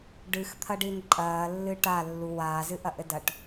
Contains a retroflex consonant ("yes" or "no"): yes